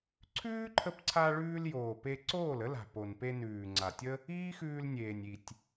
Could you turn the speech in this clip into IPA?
ǀʰ ʉː˦ ǃʰ ə˧ p ǀʰ a˧ ɭ ʉː˧ l j oː˨ p e˧ ǀ oː˦˨ l ə˦ l a̤˨ p o˨ n p e˧ n ʉː˨ ŋ͡ǀ a˨ tʲ ə˦ | iː˦ x ʉː˧ l nʲ eː˨ nʲ i˨ tʲ

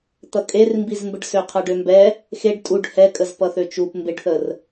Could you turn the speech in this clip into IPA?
t̪ ʌ kʼ e r m b i z m b ə ɖ s ø qʰ ʌ ɖ ø m b ɛ | x e ɖ tʼ u ɖ h ɛ kʼ ə z p ʌ θ ø t͡ʃ u p m b e ɖ θ ə r

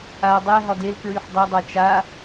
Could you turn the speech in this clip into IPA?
a dˤ ɛ ɦ ɒ d e l k ɹ y ħ dˤ e dˤ a t͡ʃ a

